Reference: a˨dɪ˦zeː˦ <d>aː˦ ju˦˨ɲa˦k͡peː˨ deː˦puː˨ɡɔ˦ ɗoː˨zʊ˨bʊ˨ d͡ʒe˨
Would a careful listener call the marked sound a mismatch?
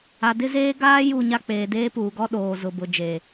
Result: yes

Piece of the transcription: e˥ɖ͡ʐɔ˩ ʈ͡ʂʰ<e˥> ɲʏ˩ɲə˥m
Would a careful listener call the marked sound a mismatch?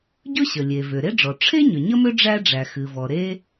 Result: no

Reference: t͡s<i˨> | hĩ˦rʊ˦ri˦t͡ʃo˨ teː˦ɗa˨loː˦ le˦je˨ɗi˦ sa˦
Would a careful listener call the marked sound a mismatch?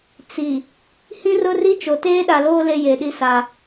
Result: no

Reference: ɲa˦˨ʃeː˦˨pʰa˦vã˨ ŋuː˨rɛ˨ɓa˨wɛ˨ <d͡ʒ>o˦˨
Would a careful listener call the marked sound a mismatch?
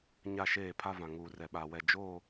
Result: no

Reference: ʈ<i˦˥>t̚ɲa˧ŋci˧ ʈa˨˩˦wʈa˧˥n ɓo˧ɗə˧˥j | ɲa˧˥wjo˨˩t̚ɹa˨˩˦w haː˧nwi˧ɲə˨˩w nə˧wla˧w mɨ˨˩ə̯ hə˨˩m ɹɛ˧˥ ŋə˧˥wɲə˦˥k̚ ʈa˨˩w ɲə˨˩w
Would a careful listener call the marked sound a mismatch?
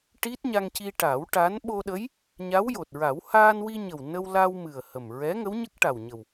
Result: no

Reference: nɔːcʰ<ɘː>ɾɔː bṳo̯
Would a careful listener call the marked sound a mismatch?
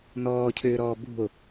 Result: yes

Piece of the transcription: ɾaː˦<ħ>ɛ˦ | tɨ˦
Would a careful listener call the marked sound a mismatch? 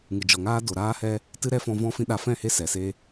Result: yes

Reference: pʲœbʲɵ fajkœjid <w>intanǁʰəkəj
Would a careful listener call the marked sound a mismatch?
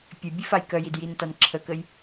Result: yes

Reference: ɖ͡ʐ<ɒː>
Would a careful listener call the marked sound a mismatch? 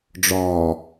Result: no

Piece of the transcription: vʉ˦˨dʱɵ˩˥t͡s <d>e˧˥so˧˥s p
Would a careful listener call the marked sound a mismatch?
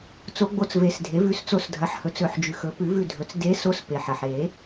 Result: no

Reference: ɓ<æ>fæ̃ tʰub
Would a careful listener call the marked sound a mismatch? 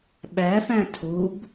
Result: no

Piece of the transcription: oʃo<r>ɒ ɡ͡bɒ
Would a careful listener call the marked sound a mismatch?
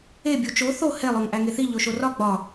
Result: no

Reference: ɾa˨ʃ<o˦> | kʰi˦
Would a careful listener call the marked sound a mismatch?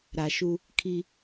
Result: yes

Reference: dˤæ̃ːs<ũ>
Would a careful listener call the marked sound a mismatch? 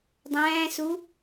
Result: yes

